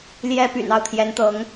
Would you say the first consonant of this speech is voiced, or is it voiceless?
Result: voiced